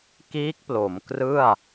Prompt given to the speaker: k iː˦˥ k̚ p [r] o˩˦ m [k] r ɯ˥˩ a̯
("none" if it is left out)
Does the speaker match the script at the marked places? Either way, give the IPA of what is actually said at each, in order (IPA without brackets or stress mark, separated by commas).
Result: l, k